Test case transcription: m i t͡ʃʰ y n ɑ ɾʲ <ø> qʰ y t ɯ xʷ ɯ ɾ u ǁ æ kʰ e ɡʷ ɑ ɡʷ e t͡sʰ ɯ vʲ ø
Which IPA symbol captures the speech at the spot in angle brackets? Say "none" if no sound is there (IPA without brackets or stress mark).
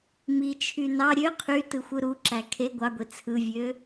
ø